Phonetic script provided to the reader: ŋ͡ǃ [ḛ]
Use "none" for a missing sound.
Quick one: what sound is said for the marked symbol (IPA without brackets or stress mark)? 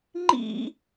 ḭ